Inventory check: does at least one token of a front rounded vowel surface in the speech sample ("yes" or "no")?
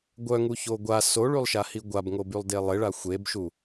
yes